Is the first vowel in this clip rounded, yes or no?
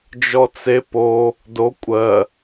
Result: yes